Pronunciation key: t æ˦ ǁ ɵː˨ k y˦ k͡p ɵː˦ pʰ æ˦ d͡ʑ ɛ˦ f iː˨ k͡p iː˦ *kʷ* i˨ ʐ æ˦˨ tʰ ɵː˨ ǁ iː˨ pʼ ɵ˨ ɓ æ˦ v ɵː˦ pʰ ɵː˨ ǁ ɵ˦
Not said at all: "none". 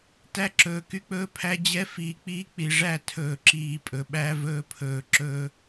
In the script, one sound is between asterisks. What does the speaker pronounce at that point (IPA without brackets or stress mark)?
k͡p